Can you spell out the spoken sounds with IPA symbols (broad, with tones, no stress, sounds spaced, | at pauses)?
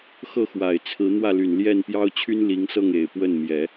x ɤ˥˩ x w a˨˩ ɪ̯ t͡sʰ ɹ̩˧˥ n̪ w ä˥˩ l y˨˩ n l j ɛ˥˩ n p j ɑ˥ ʊ̯ t͡ɕʰ y˥ n l i˧˥ ŋ s ɤ˥˩ ŋ e˨˩ ɪ̯ p w ə˥˩ n m j ɛ˨˩˦